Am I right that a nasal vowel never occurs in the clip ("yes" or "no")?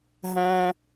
no